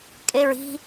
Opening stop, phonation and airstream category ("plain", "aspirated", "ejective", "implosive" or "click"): ejective